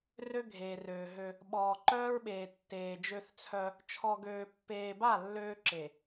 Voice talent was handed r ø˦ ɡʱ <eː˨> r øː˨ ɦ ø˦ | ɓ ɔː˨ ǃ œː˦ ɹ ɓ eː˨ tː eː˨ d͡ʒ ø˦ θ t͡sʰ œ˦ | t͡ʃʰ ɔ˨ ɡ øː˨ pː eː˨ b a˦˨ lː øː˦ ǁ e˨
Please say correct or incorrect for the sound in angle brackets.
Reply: correct